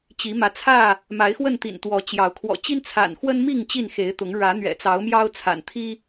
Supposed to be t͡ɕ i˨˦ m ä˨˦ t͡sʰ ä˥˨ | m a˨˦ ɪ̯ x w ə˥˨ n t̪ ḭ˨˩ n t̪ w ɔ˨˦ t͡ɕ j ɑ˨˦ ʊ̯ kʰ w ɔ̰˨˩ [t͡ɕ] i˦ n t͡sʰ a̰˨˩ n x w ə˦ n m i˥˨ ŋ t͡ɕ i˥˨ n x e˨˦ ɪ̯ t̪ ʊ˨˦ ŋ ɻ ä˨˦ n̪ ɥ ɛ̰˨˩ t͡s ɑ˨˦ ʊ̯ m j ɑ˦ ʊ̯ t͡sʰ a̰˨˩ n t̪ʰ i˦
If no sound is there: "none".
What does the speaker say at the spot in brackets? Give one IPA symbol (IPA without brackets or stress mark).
t͡ɕ